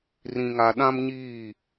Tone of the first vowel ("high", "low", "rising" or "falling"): low